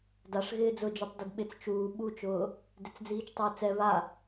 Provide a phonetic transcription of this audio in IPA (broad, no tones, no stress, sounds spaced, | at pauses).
d a ʂ ɣ ɪː d͡z ʊ d͡ʒ o tˤ d i d ɓ ɪ t͡s t͡ʃ uː ɓ u t͡ʃ ʊː | d ɪ t͡s d͡z iː t͡ʃ tˤ ɪː t͡s ɛ β a